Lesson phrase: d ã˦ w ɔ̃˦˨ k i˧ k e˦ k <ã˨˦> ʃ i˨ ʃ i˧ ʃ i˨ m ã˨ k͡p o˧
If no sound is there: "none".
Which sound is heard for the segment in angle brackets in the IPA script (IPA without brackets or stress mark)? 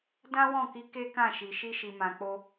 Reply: ã˦˨